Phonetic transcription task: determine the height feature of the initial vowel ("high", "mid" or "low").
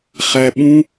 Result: low